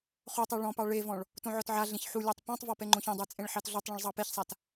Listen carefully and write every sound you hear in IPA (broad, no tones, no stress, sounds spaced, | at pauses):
χ o tˤ ɛ ɭ ɔ̃ p ɑ ɭ e v ɔ̃ ɭ | t õ ʕ ɔ t ʕ a ɮ ẽ ç ħ u lʲ ɑ tˤ p ɔ̃ tˤ v ɔ p ɛ ŋ͡ǃ õ ç ɔ̃ dˤ ɛ t͡sʼ ẽ ɭ ħ ɑ t ɮ o tˤ ɭ ɔ̃ ɭ zˤ ɑ p e ç sˤ a t